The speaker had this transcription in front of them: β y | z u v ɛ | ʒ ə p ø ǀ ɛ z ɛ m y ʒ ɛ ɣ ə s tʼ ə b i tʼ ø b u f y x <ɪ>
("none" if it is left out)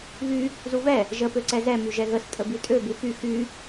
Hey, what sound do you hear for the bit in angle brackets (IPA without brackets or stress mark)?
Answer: y